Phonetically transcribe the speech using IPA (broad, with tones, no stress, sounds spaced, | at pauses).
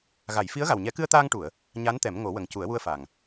ɣ a˨˩˨ j f i˧˥ ə̯ ɣ a˨˩ w ɲ ɛ˨˩˦ k ɨ˧ ə̯ t̪ aː˧ ŋ ʈ u˨˩˨ ə̯ | ɲ a˧˥ n t̪ ɛ˨˩˦ m ŋ o˨˩˦ w ə˨˩ ŋ c u˨˩˦ ə̯ w u˧ ə̯ f a˨˩ ŋ